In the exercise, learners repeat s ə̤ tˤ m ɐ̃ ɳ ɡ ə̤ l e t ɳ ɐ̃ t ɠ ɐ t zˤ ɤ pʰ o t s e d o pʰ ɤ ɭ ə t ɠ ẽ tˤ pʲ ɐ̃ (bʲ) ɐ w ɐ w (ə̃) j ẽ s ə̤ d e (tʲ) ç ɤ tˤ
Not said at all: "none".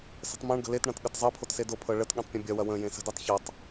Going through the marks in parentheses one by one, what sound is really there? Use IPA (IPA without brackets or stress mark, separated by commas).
bʲ, ə̃, tˤ